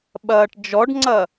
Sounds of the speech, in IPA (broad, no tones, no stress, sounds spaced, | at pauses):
ɓ ɐː ʈ d͡ʒ ɔ ɖ ŋ͡ǀ ɐ